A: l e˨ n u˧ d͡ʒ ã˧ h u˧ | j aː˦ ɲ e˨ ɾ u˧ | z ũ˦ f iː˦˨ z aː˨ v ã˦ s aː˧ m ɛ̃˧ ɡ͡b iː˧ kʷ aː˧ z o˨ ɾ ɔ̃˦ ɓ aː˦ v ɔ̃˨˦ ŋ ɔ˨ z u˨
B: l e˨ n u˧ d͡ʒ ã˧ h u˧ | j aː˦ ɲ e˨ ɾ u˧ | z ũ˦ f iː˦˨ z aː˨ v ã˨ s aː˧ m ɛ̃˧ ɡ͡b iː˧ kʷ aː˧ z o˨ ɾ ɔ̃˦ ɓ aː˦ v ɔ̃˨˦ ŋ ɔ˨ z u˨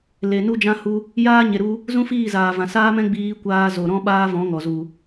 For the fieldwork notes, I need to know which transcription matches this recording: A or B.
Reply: B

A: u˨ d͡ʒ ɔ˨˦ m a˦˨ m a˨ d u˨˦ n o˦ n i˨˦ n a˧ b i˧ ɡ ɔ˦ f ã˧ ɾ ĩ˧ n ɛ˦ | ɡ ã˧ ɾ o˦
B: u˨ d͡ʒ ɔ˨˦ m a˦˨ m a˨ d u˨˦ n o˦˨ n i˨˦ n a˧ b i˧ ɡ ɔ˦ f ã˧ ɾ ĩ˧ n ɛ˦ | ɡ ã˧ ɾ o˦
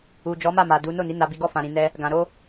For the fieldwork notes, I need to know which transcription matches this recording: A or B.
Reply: B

